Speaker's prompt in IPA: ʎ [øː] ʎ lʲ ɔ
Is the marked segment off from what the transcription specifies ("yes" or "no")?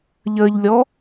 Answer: yes